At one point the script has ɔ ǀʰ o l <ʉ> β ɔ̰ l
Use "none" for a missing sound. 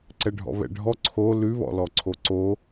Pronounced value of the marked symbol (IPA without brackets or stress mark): ʉ